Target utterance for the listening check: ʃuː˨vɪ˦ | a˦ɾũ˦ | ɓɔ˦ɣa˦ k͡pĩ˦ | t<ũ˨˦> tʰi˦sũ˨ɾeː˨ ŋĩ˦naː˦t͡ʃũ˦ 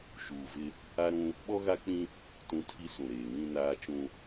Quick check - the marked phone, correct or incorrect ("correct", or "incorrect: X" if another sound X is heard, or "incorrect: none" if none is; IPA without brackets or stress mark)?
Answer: correct